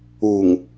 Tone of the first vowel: low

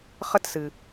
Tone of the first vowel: high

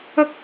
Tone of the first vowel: high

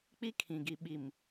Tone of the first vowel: high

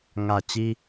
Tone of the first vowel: low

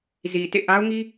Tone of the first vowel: low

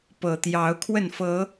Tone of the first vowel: low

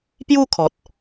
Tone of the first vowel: falling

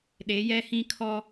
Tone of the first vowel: rising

